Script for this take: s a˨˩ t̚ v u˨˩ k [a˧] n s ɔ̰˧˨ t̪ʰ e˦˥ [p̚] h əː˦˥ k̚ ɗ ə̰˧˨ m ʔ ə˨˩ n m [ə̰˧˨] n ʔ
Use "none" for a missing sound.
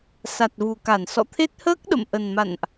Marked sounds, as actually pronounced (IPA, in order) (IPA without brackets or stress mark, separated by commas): a˧˩, t̚, a̰˧˨